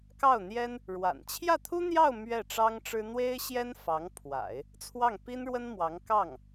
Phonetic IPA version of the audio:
k ɑ˥˩ ʊ̯ n̪ j ɛ˥ n | ɻ w a̰˨˩ n t͡ɕʰ j ä˥˩ t̪ʰ u˥ n̪ j ɑ˥˧ ʊ̯ m ɥ ɛ˥˩ ʈ͡ʂ ɑ˥ ŋ ʈ͡ʂ ɻ̩˥ n̪ w e˥ ɪ̯ ɕ j ɛ˥ n f ɑ˧˥ ŋ pʰ w a̰˨˩˦ ɪ̯ | t͡sʰ w ɑ˥˩ ŋ p i˥ n ɻ w ə˥ n m w ɑ˧˥ ŋ k ɑ˥˩ ŋ

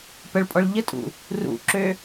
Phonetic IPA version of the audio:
p ə ɭ pʼ ɔ ɭ ʎ ə tʼ ṵ | r ṵ ǁ ø

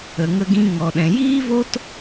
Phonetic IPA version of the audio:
ə˧ ŋ ə˦ ɡ ĩ˦ ŋ ɔ˧ ɗ ɛ̃˧ j iː˦ v o˦ t

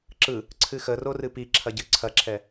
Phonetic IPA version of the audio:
ǁ ɯ | ǀʰ ɨ x ə r o r ɨ p i ǁʰ ɐ ɟ ɨ ǀʰ ɐ ǁʰ ɛ

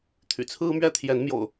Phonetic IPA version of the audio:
t̪ʰ y̰˨˩ t͡sʰ ɹ̩˦ m ɥ ɛ˦ t̪ʰ j ɛ˨˦ n m j o̰˨˩ ʊ̯

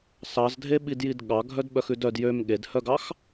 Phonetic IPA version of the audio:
s ɑ z dʱ e ɓ i d j i d ɠ ɑ ɡʱ œ d ɓ œ x ʉ d œ d j ø m ɠ e d h œ ɡ ɑ x

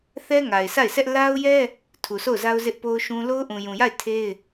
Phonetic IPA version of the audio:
θ ɛ˦ ŋ a˨ ɪ̯ sʰ a˦˨ ɪ̯ sʰ ɛ˦ ʔ l a˦ ʊ̯ j ɛ˦ | tʰ u˨ sʰ o˦˨ ʊ̯ z a˦ ʊ̯ z ɪ˦ ʔ p o˦ ʊ̯ ʃ ũ˦ l o˦ ʊ̯ ʔ ũ˨ j ũ˨ j a˦˨ ɪ̯ tʰ e˦ ɪ̯

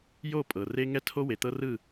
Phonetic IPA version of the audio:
j o˦˨ pʼ ɤ˨ r e˦ ŋ ɛ˦ tʰ o˦ w e˨ t̪ ɤ˦ r ɯ˦˨

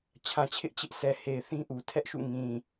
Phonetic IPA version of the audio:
t͡ɕʰ ã˨ t͡ɕʰ ɪ˦ ʔ t͡ɕ ɪ˦ ʔ sʰ ɛ˨ h e˨ ɪ̯ θ ĩ˦ ʔ u˨ tʰ ɛ˦ ʔ ʃ ṵ˦˨ ŋ ĩ˨

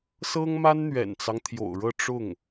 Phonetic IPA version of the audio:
s ɤ˥ ŋ m a˥ n n̪ ɥ ɛ̰˨˩ n t͡s ɑ˦ ŋ t̪ʰ j o̰˨˩ ʊ̯ ɻ ɤ˥˧ ʈ͡ʂ ʊ˥˩ ŋ

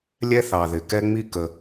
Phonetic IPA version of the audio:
lʲ ɛ˦ θ ɑ˨ ð ɪ˨ k ɛ˦ ŋ͡m i˦ k ə˧

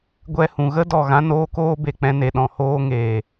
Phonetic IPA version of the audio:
ɡʷ ɛ˧ h ũ˨ ɣ ə˦ d ɔ˦˨ ɣ ã˦ n oː˦ k oː˦ b e˨ k͡p ɛ̃˧ n e˨ ɗ ɔ̃˨ h oː˧ ŋ eː˨

